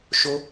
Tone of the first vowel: high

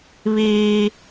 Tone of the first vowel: high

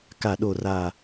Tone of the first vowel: falling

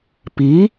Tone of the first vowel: rising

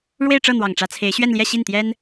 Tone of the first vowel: falling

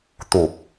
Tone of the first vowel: low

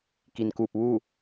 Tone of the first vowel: low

